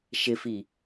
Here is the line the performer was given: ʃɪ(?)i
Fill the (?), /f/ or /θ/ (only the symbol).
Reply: f